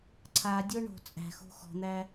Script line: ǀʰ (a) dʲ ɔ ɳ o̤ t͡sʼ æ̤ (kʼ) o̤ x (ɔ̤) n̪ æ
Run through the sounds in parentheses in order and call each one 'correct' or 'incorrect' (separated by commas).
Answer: correct, incorrect, correct